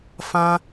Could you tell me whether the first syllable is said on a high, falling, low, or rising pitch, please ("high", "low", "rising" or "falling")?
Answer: high